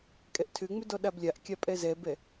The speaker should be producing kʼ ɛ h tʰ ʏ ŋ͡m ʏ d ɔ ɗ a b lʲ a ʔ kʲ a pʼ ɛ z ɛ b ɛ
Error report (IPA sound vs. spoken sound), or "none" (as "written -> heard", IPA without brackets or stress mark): h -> ʔ